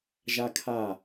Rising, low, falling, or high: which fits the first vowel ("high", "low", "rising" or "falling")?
high